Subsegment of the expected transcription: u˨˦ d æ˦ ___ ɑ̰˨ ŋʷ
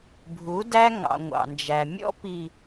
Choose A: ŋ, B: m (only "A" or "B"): A